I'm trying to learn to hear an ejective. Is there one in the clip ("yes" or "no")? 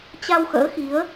no